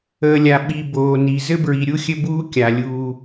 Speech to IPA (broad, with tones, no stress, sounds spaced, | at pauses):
əː˨ lʲ a˨ ɓ i˨ b oː˨ n i˨ z ɘ˦ b ɹ i˨ ɾʲ u˦ xʲ ɘ˦ b uː˦ kʲ a˨ lʲ uː˦